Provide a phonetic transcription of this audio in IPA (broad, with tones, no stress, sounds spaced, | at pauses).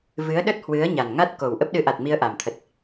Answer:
v ɨ˨˦ ə̯ ɗ ə˦˥ t̚ h w ɨ˨˦ ə̯ ɲ a˨˩ n ŋ a˦˥ t̚ k o˨˩ w ʔ ə˦˥ p̚ ɗ ɨ˨˦ ʔ a˨˩ t̚ m i˧ ə̯ ʔ a˨˩ m t̪ʰ ə˨˩ t̚